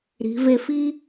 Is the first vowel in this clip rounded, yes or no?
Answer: no